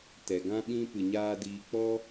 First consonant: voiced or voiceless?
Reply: voiceless